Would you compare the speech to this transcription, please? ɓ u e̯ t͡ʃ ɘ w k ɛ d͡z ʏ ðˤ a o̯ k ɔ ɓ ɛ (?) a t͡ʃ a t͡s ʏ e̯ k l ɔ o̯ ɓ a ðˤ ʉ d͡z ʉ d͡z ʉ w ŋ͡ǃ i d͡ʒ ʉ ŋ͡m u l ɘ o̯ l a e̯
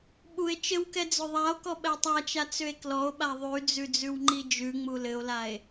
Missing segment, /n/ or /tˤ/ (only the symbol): tˤ